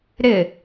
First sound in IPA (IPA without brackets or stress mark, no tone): ɾ